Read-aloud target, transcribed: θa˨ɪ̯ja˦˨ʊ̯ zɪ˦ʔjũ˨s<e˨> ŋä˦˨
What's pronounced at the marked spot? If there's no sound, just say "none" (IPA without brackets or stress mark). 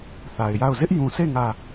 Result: e˦˨